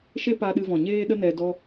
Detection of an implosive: present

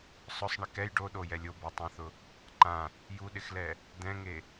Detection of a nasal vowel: present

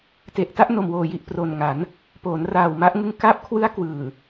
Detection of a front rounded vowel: absent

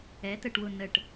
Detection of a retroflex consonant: present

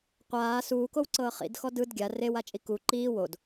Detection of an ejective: present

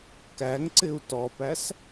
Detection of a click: present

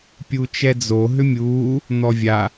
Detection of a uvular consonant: absent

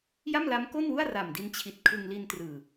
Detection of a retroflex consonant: absent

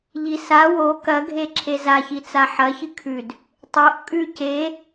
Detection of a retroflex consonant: absent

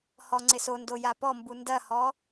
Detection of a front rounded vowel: absent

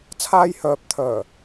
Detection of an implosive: absent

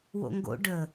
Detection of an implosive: absent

